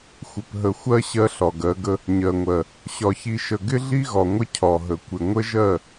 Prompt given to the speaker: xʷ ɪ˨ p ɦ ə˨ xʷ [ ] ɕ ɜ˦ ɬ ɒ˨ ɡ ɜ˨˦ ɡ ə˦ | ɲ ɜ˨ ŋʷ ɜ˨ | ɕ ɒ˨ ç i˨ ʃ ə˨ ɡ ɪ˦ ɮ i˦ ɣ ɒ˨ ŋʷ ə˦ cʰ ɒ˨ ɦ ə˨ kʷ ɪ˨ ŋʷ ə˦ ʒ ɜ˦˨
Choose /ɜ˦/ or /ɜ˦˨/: ɜ˦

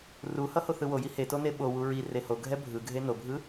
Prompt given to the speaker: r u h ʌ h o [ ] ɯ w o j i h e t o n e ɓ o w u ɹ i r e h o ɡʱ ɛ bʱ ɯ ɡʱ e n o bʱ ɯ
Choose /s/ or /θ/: θ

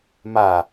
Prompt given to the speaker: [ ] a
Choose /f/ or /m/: m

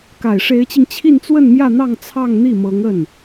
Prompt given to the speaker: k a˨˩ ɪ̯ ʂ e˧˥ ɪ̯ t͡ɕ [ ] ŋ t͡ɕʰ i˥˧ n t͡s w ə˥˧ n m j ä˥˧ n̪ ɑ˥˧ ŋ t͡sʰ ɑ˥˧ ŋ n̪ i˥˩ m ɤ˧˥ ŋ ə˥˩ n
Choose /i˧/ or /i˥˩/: i˧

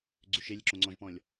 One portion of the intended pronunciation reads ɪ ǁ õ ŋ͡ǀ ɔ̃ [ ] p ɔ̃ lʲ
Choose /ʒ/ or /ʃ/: ʒ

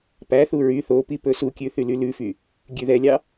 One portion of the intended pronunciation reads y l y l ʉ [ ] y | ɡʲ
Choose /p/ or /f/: f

